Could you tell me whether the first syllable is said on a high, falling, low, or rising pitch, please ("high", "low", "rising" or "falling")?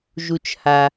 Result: low